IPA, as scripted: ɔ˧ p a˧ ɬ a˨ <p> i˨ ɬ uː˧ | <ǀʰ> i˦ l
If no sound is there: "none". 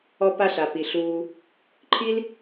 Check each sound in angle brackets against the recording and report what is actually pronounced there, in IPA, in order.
p, ǃʰ

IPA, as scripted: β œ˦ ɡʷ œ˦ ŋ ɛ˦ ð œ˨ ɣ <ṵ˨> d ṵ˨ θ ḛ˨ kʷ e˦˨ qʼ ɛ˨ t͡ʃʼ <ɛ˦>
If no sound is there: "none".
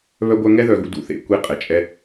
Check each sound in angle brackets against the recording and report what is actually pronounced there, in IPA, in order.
ṵ˨, ɛ˦

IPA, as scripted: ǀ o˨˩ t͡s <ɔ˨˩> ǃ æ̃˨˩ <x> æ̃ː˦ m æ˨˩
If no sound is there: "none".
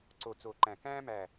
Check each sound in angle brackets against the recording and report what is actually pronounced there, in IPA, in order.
o˨˩, k

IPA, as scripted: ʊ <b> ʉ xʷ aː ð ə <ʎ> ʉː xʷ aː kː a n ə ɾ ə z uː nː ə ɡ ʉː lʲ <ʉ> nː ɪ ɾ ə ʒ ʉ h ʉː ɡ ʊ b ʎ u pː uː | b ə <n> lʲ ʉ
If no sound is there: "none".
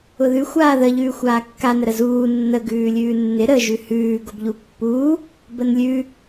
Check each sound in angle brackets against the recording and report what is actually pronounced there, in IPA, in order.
ð, ʎ, ʉː, n

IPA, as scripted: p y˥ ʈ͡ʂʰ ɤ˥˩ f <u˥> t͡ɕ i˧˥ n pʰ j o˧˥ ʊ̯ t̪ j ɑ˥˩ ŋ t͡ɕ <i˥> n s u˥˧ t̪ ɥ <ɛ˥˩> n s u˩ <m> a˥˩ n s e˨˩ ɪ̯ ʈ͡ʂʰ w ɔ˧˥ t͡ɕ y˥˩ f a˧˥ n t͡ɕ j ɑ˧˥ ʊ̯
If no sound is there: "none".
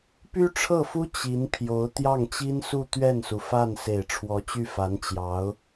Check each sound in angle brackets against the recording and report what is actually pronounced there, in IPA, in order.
u˥, i˥, ɛ˥˩, f

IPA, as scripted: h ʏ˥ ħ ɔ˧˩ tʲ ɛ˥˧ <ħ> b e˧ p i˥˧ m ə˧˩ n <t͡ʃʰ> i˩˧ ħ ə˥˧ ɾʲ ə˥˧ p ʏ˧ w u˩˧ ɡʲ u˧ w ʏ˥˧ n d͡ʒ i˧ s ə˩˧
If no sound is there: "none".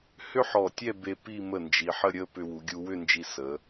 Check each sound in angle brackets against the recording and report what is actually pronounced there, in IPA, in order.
none, d͡ʒ

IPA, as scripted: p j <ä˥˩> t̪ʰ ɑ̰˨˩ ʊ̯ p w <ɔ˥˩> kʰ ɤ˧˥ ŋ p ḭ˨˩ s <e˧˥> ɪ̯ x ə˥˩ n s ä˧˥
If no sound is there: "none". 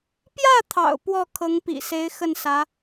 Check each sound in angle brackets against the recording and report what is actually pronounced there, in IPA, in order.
ä˥˩, ɔ˥˩, e˧˥

